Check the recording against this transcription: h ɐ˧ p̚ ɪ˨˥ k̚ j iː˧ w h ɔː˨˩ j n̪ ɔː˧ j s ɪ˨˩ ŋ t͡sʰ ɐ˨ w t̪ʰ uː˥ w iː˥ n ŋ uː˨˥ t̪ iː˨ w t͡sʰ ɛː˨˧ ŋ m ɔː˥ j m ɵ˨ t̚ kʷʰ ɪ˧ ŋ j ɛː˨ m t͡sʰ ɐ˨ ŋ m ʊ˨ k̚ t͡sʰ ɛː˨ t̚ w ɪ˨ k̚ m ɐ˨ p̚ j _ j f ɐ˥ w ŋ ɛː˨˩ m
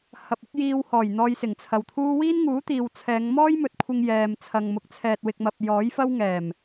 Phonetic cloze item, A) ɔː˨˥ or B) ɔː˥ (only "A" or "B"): A